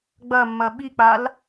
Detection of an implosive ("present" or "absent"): present